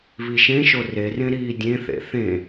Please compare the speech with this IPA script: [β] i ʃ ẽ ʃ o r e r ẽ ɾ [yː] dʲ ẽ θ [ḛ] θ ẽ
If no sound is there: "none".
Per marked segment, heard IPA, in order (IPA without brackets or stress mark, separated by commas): β, iː, ḛ